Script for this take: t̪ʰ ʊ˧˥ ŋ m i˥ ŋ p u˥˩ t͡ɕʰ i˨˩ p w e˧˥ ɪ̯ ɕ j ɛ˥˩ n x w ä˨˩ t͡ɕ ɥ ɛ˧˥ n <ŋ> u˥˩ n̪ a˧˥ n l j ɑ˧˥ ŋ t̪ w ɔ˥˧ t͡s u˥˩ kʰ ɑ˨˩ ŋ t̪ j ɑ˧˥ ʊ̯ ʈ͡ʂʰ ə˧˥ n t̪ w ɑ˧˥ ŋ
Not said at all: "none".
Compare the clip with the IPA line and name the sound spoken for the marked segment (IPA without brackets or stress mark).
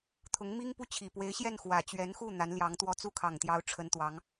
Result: x